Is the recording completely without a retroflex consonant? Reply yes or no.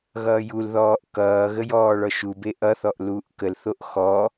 no